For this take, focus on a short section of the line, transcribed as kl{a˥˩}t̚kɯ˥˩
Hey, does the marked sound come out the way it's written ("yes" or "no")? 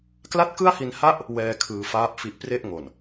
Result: yes